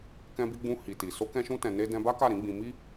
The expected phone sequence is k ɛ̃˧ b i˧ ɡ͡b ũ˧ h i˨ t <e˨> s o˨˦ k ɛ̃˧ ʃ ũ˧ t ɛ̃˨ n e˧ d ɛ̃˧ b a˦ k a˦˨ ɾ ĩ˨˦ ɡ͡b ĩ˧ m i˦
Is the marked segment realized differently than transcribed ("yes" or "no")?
yes